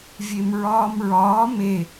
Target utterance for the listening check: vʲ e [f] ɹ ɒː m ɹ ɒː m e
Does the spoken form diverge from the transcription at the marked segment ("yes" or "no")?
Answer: yes